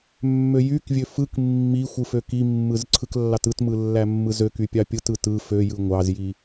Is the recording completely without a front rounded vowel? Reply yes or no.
no